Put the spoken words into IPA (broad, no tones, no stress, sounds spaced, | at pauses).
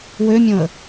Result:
w ø mʲ õ ə̯